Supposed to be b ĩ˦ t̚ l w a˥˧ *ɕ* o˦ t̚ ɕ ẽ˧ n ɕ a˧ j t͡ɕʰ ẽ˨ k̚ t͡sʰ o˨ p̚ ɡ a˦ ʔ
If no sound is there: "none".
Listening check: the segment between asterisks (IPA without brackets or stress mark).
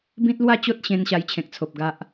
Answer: t͡ɕ